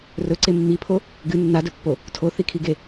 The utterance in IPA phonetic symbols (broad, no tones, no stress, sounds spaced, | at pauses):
r ɵ ǀ e mː i pʰ o | ɡ ɨ nː a d ɵ pː o | tʰ o θ i kʰ i ɡ e